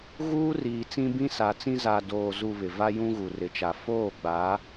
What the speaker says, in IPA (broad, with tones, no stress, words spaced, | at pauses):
ɣuː˦riː˨t͡sĩ˦ bĩ˦sa˨t͡sĩ˦ za˨doː˨zu˨ βɪ˨va˦ jũ˦ɣu˨rɪ˨t͡ʃa˨ foː˦˨ɡ͡ba˨˦